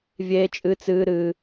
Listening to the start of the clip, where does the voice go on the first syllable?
high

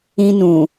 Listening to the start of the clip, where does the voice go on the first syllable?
high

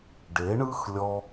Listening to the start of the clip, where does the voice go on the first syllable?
rising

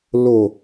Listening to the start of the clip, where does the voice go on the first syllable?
low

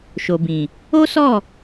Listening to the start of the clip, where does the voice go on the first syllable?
low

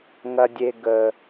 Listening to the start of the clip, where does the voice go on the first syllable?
high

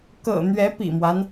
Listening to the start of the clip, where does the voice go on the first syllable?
low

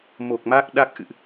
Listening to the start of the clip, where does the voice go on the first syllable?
low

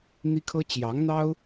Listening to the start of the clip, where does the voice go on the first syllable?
high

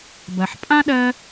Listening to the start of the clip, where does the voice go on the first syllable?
low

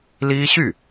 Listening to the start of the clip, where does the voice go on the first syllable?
high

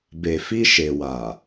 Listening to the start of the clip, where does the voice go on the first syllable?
low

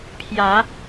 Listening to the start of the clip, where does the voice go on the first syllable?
rising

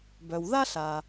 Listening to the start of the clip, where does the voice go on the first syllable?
low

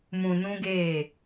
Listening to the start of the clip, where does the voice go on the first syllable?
low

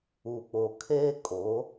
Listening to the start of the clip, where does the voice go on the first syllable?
low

